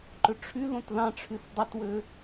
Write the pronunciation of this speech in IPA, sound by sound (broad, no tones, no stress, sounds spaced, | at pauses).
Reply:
ǃ ɵ ʈ͡ʂʰ y ð õ t ð ɑ̃ ʈ͡ʂʰ y θ dˤ ɵ t w ø